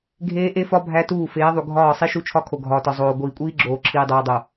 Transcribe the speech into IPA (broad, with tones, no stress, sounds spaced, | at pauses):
ɡʱ eː˦ ʔ e˦ f ɒ˦ bʱ æ˦ t uː˦˨ f eː˨˦ ðˤ u˨ ɡʱ ɒː˦˨ sˤ i˦ ʃ u˦ t͡ʃʰ ɒ˦ kʰ o˨ ɡʱ ɒː˨ t ɒ˨ zˤ oː˨ ɡʷ iː˨ kʷʼ iː˦ ɡ͡ǁ oː˨ ǁʰ iː˨ dˤ oː˨ dˤ o˨